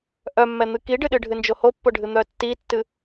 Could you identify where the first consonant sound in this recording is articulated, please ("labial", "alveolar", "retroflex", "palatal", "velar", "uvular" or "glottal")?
glottal